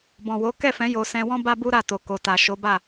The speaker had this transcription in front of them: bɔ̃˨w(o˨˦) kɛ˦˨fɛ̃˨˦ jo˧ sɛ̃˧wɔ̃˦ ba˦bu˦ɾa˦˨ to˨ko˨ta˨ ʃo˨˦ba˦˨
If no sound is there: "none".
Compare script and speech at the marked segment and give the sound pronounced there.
o˨˦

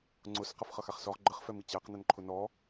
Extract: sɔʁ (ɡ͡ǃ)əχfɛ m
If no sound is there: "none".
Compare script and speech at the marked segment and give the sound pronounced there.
ɡ͡ǃ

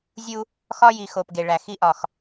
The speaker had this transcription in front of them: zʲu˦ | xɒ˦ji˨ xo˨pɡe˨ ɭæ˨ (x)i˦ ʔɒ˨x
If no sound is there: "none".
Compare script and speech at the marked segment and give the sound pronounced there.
x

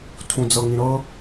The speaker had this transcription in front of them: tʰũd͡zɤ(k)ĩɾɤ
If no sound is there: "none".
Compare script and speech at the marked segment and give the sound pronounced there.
ŋ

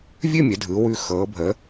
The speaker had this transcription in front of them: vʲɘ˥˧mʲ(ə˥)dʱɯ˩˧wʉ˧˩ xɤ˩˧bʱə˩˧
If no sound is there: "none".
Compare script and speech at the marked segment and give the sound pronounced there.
ə˩˧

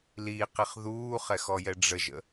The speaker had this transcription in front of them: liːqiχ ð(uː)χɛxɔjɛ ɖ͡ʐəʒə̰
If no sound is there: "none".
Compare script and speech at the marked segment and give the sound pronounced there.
uː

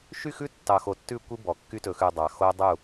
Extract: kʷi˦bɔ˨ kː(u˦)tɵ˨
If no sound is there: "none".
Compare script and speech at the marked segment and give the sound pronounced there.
y˦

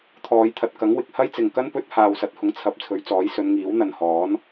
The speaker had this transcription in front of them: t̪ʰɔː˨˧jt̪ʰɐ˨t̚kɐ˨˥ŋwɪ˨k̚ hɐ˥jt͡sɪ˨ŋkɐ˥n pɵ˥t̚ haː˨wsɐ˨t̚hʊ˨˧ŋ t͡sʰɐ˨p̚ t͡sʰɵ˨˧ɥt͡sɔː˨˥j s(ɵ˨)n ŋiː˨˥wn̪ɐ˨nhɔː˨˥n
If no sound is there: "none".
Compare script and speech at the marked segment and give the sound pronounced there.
ɵ˨˧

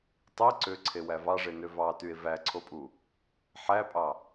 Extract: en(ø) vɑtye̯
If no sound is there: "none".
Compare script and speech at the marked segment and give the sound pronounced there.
ø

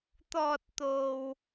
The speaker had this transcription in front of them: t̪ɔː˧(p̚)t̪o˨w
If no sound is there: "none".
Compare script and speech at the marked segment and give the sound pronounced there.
t̚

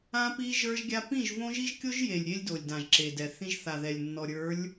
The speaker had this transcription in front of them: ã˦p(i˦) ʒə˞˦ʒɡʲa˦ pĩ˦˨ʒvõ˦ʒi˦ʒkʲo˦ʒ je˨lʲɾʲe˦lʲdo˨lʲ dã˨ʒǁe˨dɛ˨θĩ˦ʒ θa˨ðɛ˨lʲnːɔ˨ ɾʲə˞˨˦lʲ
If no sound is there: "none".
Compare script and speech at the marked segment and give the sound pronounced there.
i˦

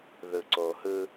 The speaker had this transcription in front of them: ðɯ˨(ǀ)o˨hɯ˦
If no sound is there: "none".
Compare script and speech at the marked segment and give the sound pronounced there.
ǀ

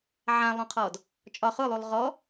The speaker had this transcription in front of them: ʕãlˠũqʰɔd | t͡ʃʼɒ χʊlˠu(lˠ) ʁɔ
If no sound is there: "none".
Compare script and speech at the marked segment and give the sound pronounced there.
lˠ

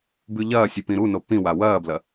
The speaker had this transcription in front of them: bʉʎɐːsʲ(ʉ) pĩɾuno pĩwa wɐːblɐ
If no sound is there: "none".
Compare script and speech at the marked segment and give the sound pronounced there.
ʉ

